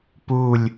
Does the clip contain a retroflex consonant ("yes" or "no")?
no